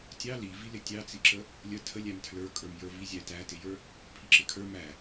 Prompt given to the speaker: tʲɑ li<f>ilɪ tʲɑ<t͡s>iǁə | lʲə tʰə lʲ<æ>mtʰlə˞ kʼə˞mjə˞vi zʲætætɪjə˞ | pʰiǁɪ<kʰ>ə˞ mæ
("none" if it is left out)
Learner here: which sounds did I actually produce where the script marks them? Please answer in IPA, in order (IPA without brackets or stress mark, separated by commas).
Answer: v, t͡s, æ, kʰ